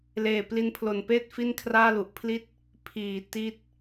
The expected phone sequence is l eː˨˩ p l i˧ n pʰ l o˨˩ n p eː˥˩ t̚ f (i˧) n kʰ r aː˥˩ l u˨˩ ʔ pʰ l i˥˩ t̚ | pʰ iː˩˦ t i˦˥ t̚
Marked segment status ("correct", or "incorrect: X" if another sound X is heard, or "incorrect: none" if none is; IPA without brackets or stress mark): incorrect: i˥˩